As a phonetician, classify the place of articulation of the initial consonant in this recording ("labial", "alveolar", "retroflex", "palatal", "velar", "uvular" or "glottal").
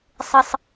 alveolar